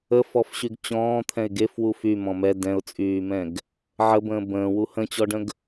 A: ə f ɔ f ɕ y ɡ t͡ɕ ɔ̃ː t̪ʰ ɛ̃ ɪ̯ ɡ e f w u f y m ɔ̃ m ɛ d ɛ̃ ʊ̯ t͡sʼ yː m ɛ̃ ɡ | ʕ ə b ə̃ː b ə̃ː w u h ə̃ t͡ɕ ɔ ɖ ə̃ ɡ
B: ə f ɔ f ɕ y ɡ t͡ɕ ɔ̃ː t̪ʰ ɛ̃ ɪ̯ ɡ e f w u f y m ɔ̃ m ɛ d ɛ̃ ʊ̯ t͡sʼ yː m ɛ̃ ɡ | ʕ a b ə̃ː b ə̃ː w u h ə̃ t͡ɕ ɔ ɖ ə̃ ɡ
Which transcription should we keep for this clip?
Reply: A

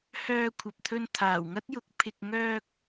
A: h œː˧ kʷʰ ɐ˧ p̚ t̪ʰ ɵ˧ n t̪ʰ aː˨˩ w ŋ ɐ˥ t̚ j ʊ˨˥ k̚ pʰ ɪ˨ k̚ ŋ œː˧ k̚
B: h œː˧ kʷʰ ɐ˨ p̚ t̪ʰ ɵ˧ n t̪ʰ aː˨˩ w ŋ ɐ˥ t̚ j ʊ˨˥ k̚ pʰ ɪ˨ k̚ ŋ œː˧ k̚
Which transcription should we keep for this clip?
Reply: B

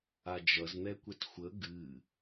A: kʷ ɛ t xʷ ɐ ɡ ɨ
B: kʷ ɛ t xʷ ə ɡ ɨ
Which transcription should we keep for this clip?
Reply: B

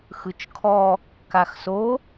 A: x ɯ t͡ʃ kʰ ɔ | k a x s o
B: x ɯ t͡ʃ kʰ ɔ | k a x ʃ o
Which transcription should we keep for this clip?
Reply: A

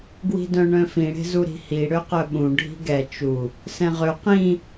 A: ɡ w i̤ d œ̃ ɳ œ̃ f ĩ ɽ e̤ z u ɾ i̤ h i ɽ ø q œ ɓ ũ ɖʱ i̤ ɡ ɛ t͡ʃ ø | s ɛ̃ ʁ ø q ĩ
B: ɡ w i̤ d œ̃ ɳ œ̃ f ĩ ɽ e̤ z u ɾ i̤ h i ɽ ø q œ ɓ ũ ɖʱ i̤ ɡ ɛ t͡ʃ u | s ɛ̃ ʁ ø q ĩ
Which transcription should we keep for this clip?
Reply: B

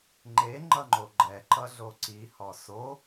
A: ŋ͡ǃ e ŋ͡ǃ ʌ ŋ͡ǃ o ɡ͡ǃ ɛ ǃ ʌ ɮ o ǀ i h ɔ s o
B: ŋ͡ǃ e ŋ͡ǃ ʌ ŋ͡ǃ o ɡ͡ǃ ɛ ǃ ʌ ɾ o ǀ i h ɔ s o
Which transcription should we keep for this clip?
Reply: A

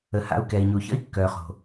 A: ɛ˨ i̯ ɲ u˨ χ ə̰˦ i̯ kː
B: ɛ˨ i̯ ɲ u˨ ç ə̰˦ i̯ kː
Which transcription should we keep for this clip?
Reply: B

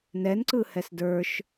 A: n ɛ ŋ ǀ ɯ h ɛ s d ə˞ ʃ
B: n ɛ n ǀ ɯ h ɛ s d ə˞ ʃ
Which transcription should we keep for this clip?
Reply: B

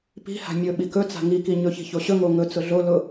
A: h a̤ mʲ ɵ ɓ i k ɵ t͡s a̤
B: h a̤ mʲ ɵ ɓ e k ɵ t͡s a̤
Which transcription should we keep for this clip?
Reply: A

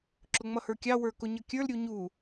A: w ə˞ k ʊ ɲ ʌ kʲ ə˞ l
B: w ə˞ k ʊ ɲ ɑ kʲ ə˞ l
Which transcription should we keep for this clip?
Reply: A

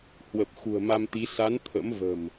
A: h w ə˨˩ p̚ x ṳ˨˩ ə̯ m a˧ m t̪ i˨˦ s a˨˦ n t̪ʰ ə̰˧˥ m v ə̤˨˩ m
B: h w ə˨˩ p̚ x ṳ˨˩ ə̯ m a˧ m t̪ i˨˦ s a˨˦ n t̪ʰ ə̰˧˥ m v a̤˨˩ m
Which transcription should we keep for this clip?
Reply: A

